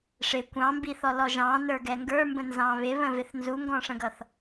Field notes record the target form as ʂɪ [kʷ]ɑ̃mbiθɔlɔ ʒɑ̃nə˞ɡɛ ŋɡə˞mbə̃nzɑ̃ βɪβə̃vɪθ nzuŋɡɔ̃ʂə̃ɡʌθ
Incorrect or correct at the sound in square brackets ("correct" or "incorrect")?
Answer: correct